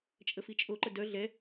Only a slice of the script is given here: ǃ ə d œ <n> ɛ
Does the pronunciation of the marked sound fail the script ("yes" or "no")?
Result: yes